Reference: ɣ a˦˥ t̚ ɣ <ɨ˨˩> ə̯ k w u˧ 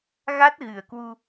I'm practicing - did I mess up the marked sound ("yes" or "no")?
no